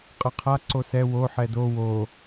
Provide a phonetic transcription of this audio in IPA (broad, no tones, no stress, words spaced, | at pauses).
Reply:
qʼʌqʰa ǀosɛ wo ħɛdo wo